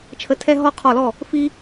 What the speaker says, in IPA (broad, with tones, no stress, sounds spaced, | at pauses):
t͡ʃʰ ə˧˩ tʰ ɛ˦ ɦ ɔ˦ qʰ ɔ˧˩ l ɔ˥˩ | f i˦